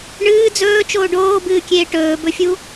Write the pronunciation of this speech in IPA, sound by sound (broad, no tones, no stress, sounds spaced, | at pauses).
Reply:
ɳ ɨː d͡z ɵː t͡ʃ oː ɖ oː b ɨː kʲ eː ʈ ɵː b ɵ fʲ u